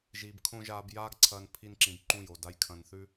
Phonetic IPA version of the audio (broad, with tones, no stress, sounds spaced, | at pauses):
ʒ iː˧ b kʰ õ˦ ʒ aː˧ b j aː˦ ɡ ǀʰ ɐː˧ n pʰ i˦ n ǁ ĩ˧ b ǃ ũ˦˨ j o˨ d a˧ j kʰ ɐ̃˧ n θ ʉ˦